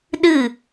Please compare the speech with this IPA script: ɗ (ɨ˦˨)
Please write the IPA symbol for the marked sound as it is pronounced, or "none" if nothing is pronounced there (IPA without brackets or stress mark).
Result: ɨ˦˨